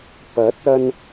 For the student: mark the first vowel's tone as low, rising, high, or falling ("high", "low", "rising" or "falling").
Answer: rising